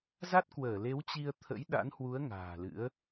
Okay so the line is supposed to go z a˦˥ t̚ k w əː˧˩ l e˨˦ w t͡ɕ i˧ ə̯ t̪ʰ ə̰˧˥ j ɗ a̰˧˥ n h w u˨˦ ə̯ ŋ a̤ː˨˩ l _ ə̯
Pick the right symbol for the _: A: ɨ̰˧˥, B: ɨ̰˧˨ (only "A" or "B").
A